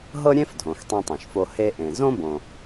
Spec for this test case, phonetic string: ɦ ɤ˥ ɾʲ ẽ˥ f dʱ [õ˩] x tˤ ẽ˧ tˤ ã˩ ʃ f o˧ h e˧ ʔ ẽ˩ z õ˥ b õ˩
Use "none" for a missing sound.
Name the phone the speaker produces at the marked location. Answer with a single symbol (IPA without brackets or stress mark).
õ˩